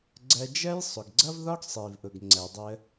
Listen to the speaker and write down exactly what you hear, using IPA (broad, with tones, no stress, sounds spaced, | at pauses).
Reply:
ɡ͡ǀ ɜ˧ d͡ʒ ɜ˥ j sˤ ʊ˩ ɡ ɡ͡ǀ ʌ˥ v ð ɒ˥ ɡ sˤ i˩ v ʔ ʊ˩ ɡ ŋ͡ǀ ɜ˩ dˤ ə˧